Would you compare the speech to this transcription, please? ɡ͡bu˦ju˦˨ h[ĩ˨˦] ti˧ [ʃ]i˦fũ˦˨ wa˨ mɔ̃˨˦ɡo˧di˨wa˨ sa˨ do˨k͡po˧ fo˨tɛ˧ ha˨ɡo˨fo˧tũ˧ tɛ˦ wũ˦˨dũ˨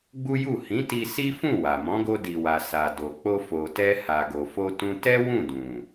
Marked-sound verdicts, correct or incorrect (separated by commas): correct, incorrect